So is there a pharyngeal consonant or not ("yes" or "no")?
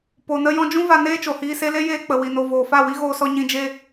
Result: no